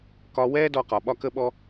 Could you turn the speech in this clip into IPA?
k ɒ˧ w ɛː˥ d ɔ˧ q ɒ˩ ɓ ɒ˧ k ə˧ ɓ ɔ˧

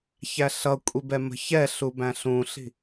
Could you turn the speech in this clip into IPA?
ç æ ɬ ʌ kʷʼ i b ɛ m ə̤ ç ɛ ɬ u b æ̃ ɬ ũ ɬ i̤

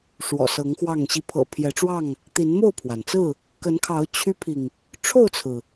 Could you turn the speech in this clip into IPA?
ʂ w ɔ̰˨˩ s ɤ˨˦ ŋ x w ɑ˥˨ ŋ ɕ i˨˦ pʰ ɤ̰˨˩ pʰ j ɛ˨˦ ʈ͡ʂ w ɑ˥˨ ŋ | t̪ i˨˦ n m o˥˨ ʊ̯ pʰ w a˩ n t͡s ɹ̩˥˨ | k ə˨˦ n kʰ ɑ˨˦ ʊ̯ t͡ɕʰ y˦ pʰ i˨ ŋ | ʈ͡ʂʰ o˥˨ ʊ̯ t͡sʰ ɹ̩˩

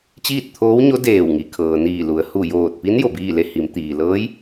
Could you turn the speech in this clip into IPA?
t͡ɕ iː˥˨ t̚ t̪ʰ oː˧˥ w ɲ o˧˥ d eː˧˩ w ŋ i˩˧ kʰ ɤː˩ n iː˧˩ l u˩ ə̯ h u˧˩ j oː˧˩ t̚ p i˧˥ n j o˧˩ b iː˥˨ l e˥˨ h i˩˧ m t̪ iː˩ l ɤː˧˥ j

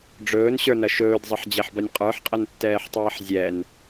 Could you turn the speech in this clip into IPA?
ɖ͡ʐ ɵː n ɕ ə˞ n ɐ ʃ ɵː d zˤ ɐ ħ d͡ʑ ɛ ħ b ɐ nʲ qʼ ə˞ ħ qʼ ɐ n tː ɛː ħ tˤ ɛː ħ zʲ ɛ n

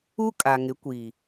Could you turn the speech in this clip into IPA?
u˦ kʼ a˨ ŋ ɪ˨˦ kʷ i˨

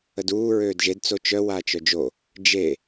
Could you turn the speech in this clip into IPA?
ə d uː ɹ øː d ʒ e d t͡s o t͡ʃ œ w aː t͡ʃ œ d͡ʒ o | d͡ʒ e

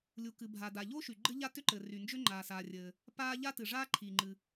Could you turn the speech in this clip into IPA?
lʲ u˩ k ɨ˩ bʱ a˩ d a˩ ʎ o˥ ʃ y˩ ɡ͡ǃ ɘ˥ ʎ a˥ t ʏ˥ ǃ ɘ˩ r y˩ n d͡ʒ ʏ˥ ŋ͡ǃ aː˩ s aː˩ rʲ ɘː˩ | p aː˥ ʎ a˥ t ɨ˩ ʐ aː˥ ǃʰ iː˩ ŋ͡ǃ ɨ˩

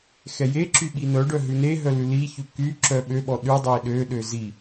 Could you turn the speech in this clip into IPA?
x ɛ j e ǁ y ɓ i n œ ɖ œ ɦ ʉ n e ɦ œ l ʉ l i ç ʉ k y ǁ œ ɓ ø ɓ ɔ ɗ ʉ dˤ ø i̯ ɗ ø ɗ ø z i

